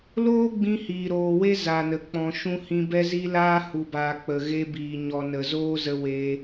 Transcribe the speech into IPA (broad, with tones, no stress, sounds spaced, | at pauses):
l oː˦ ɡ͡b ĩ˧ h iː˨ ɾ oː˨ w e˦ z a˨ n ə˨ k͡p ɔ̃˨ ʃ ũ˧ h ĩ˧ b ɛ˦ z i˦ l aː˦ h u˨ b aː˨ k͡p ə˨ ɣ e˧ b iː˨ ɲ ɔ˨ n ə˨ z oː˦ z ə˧ w eː˧